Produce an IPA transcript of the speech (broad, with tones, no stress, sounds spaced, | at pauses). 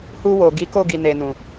h u˧ w o˨ ɡ i˨˦ k o˦˨ ɡ i˨ n e˨ n ũ˨